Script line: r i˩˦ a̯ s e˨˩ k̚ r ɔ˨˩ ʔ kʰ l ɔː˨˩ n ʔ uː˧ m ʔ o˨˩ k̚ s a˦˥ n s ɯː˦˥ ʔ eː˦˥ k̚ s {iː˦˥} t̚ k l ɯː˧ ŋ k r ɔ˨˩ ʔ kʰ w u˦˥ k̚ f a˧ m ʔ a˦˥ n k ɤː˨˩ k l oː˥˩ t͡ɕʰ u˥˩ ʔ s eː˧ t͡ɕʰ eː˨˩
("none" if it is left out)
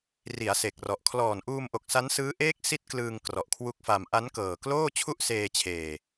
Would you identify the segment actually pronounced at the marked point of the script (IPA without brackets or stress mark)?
i˦˥